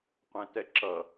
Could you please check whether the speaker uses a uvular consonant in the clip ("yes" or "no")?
yes